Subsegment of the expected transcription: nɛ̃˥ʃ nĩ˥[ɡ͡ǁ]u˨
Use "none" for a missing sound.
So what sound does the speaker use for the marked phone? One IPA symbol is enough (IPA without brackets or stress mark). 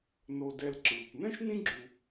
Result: ɡ͡ǁ